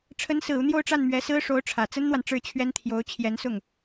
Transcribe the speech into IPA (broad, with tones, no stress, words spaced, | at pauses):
ʈ͡ʂʰə˧˥nsɹ̩˨˩u˦ n̪jo˥˧ʊ̯ʈ͡ʂa˥˩n mɥɛ˧˥sɹ̩˥ ʂo˧˥ʊ̯ʈ͡ʂʰä˨˩ t͡sə˥nn̪wa˨n ʈ͡ʂɻ̩˥˩t͡ɕʰɥɛ˥nt̪ʰjo˧˥ʊ̯ t͡ɕʰjɛ˧˥nsʊ˥˩ŋ